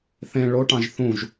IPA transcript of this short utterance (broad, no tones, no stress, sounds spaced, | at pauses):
θ ẽ ɭ o ʈ ɑ̃ ʒ θ ũ ʒ